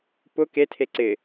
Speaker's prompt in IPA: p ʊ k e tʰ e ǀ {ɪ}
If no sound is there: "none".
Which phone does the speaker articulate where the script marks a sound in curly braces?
ɪ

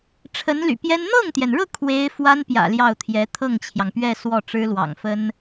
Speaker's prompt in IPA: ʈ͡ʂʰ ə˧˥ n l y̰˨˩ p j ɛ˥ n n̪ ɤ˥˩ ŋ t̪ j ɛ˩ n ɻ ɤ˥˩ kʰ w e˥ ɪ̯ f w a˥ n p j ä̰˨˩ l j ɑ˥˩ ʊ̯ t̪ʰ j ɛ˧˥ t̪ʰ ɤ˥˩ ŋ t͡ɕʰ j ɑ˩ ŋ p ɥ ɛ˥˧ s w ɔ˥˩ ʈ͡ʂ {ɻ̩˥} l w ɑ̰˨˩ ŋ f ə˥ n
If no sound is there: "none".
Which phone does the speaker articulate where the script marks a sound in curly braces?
ɻ̩˥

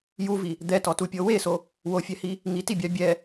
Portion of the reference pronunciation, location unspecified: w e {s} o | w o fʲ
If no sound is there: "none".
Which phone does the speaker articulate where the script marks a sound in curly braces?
s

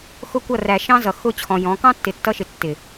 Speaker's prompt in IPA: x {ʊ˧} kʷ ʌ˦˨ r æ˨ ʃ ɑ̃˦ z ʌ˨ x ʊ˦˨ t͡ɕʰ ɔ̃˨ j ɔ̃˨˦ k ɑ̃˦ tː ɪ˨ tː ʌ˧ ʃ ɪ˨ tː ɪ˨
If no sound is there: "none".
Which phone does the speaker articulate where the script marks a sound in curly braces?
ʊ˧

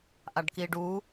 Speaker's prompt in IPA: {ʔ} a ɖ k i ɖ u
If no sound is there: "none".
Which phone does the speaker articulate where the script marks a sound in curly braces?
ʔ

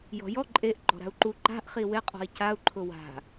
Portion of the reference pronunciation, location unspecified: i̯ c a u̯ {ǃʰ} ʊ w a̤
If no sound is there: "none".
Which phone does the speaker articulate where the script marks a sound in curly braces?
ǃʰ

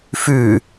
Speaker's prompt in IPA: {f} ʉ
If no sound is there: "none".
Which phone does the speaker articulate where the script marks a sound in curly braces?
f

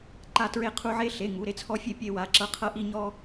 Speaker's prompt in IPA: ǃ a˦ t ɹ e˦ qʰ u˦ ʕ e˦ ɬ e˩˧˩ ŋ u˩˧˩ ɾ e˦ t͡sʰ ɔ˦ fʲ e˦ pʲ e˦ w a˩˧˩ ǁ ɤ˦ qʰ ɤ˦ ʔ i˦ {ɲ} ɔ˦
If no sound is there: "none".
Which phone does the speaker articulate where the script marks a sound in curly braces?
ɲ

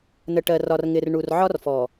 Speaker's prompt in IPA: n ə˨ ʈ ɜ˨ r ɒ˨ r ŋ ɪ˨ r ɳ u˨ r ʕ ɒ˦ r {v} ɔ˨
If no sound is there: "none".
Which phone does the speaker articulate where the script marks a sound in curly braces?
f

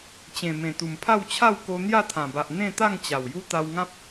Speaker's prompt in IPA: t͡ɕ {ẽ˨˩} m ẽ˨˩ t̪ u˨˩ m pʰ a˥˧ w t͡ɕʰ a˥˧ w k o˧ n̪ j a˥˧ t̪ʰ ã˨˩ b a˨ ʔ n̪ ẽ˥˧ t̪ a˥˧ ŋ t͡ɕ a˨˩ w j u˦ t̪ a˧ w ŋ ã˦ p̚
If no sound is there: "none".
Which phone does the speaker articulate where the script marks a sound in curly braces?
ẽ˨˩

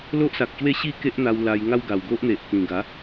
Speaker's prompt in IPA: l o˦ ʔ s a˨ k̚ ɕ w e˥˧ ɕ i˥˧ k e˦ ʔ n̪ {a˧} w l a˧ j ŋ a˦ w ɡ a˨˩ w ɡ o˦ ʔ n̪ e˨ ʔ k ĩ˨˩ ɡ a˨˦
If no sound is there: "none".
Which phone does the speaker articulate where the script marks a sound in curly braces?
a˧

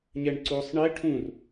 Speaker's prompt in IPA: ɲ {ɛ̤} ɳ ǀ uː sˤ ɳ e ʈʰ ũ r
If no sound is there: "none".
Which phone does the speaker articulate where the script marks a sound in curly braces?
ɛ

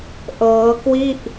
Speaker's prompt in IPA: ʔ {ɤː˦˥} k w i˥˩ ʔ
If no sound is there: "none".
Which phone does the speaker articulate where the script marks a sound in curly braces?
ɤː˦˥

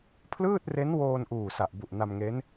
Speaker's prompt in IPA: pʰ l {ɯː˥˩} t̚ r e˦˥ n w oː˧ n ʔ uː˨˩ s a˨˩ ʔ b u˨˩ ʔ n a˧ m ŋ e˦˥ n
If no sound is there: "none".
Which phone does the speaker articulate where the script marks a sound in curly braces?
ɯː˥˩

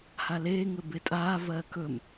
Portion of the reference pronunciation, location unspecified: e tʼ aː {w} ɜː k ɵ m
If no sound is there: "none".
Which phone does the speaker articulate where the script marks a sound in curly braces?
v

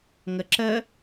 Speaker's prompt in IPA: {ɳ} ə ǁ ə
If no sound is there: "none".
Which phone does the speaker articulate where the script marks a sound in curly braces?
ŋ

